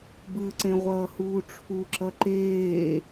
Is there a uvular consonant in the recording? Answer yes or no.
yes